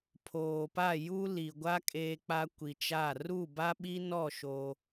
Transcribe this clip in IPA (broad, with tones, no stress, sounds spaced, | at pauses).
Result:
pʰ oː˨ p a˦˨ j u˦ l i˨ ɡʷ a˦ kʼ eː˦ k͡p a˦ kʷ i˨ t͡ʃ a˦˨ r u˦˨ b a˦ ɓ i˦ n ɔ˦˨ ʃ o˦